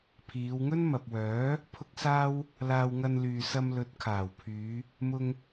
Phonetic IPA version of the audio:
pʰ iː˨˧ w ŋ ɵ˥ n m ɐ˨ p̚ w œː˨˥ | pʰ ʊ˥ k̚ s aː˥ w | l aː˧ w ŋ ɐ˧ n l yː˨ s ɐ˧ m l ɵ˨˥ t̚ kʰ aː˨˩ w pʰ yː˨˧ | m ʊ˧ ŋ

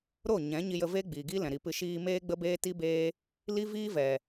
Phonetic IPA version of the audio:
ɾ o˦˨ ɲ ɛ̃˨˦ ɲ i˧ j ə˧ v e˦ ɡ͡b iː˨ ɡ i˦ l ɛ̃˨ ɾ i˨ p ɨ˧ ʃ iː˧ m eː˦ ɡ͡b ə˦ b eː˦ t i˦ b eː˦ | l i˦ v iː˦ v ɛ˨

